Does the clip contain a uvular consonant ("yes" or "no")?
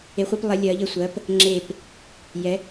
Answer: yes